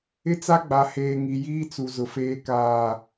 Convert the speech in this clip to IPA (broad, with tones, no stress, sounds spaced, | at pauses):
ɪ˦ t͡s a˦ ɡ͡b a˨ h eː˨ ŋ i˨ j iː˦ t͡s u˨ z ʊ˨ f eː˦ k aː˦˨